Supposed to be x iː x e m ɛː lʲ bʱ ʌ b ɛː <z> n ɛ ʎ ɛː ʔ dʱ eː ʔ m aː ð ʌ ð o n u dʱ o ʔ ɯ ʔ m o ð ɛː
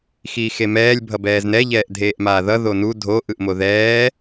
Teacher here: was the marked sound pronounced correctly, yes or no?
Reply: yes